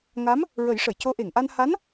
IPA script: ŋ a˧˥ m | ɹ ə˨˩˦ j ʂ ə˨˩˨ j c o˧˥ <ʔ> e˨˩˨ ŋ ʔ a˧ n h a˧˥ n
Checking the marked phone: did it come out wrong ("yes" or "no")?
no